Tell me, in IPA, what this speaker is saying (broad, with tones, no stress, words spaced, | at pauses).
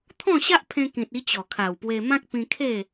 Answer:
t̪ʰɔ̃˥˧ ɕa˦ʔpʰẽ˧kĩ˨t̚i˧ t͡ɕɔ˨˩kʰa˨˩wpwe˧ mã˦k̚pĩ˧ kʰe˥˧